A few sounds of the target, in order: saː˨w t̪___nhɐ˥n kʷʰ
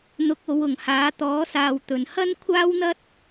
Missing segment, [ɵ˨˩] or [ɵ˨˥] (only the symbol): ɵ˨˩